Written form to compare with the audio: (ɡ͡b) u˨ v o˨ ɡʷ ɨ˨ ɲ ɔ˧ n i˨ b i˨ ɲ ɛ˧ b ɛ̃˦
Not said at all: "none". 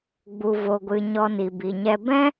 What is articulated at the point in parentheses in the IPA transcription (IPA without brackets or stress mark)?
ɡ͡b